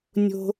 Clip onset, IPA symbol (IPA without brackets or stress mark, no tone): nʲ